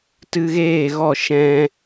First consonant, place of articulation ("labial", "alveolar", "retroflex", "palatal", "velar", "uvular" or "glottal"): alveolar